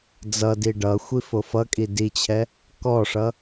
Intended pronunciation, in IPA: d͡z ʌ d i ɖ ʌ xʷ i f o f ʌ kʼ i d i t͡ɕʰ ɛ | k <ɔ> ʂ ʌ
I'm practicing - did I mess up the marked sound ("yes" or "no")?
no